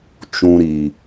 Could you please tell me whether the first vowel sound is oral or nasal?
nasal